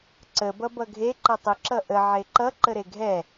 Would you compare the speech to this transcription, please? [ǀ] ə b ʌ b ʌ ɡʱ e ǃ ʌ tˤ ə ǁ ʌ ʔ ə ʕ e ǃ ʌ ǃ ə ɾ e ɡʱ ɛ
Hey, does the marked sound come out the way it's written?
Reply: yes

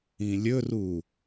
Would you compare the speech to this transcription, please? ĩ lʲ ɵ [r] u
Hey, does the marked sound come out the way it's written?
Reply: yes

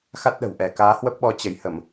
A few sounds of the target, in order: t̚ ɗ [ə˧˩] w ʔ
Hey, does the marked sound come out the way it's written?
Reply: no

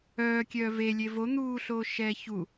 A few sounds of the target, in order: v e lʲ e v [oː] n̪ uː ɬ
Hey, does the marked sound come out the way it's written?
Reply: no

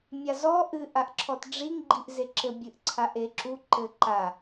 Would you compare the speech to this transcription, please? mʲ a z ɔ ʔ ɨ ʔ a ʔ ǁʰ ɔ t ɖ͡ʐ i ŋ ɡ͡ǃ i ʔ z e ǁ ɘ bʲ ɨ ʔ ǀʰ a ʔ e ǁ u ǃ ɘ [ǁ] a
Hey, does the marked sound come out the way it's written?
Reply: no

